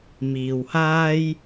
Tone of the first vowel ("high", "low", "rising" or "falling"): low